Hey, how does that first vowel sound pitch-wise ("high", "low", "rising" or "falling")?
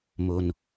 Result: low